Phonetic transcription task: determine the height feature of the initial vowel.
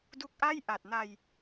high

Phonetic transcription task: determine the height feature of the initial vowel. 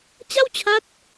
low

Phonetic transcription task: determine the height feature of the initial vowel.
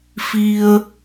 high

